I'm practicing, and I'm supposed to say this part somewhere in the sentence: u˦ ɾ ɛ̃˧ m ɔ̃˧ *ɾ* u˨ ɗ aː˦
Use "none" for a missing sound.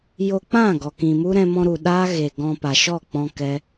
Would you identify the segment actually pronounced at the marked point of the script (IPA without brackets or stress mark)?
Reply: ɾ